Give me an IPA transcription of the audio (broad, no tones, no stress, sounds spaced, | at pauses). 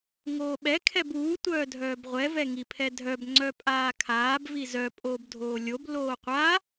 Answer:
ŋ oː ɓ ɛ kʰ ɛ b uː tʷ œː dʱ œː b ʁʷ ɛ v ɛ ŋ i pʰ ɛ dʱ œ b ŋ͡ǀ œ pʼ aː kʰ aː b v i z œ pʼ oː b dʱ oː lʲ o b l oː qʷ a